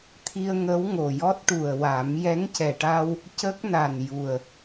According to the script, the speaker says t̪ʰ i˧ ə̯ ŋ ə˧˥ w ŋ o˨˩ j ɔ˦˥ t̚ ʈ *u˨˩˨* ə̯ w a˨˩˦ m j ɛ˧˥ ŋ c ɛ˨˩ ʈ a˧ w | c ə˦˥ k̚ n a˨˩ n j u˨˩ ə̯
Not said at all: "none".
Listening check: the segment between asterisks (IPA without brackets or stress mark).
u˨˩